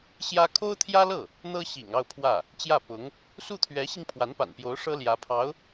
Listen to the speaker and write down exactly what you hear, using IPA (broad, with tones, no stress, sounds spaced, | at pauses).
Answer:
ɕ j ä˥ kʰ o˥ ʊ̯ t̪ʰ j ä˥ l ɤ˥˩ | n̪ ɤ˥ ɕ ḭ˨˩ ŋ ɑ˥˧ ʊ̯ pʰ w ä˥˩ | t͡ɕ j ä˥˩ p ʊ˧˥ ŋ | s u˥˩ t̪ʰ ɥ ɛ˧˥ ɕ i˧ ŋ pʰ w a˧˥ n p a̰˨˩ n p j o˧˥ ʊ̯ ʂ ɤ˥ l j ä˧˥ pʰ ɑ˧˥ ʊ̯